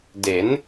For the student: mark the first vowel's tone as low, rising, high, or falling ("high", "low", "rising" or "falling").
rising